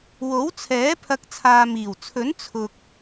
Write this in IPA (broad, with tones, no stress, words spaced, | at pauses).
wo˨˥wt͡sʰɛː˨˥ pʰɐ˨˥k̚ t͡sʰaː˨ miː˨˩wt͡sʰɵ˨˥n t͡sʰʊ˨k̚